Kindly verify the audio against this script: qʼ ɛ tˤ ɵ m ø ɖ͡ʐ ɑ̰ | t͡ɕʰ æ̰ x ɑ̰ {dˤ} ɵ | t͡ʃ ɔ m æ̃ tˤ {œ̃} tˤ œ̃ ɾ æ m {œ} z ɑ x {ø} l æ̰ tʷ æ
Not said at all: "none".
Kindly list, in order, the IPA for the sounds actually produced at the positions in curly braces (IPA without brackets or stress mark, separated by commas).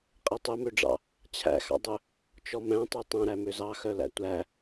dˤ, œ, ø, œ